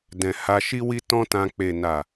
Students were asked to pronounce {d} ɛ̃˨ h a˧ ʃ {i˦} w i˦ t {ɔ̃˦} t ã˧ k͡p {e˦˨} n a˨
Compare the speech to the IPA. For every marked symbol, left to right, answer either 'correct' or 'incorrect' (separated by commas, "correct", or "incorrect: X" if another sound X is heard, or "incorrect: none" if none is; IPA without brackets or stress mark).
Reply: correct, correct, correct, incorrect: e˨